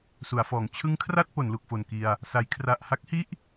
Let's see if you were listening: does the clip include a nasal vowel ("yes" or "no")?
no